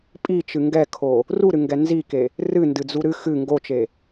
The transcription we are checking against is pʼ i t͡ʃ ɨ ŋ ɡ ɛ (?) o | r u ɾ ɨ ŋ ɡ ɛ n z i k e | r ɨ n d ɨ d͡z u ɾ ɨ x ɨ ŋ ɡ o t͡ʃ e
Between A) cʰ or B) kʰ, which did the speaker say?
B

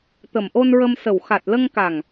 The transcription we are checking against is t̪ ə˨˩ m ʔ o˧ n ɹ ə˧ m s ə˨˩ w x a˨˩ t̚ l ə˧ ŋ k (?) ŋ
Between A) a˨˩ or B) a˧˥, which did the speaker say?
A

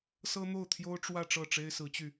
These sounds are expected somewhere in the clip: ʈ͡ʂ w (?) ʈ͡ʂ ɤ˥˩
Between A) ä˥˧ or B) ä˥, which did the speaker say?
A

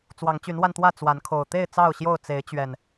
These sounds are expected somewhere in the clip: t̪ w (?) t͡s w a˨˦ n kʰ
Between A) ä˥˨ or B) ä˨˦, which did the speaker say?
A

